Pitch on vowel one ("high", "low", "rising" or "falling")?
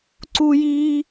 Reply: high